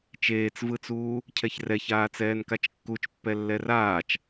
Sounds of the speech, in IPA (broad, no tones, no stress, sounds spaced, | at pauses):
t͡ʃ eː t͡s v ɯ t͡s uː | cʰ ɛ ç r ɛ ç aː t͡s ɛː n k a t͡ʃ kː u t͡ʃ pː ɛ lː ɛ r aː t͡ʃ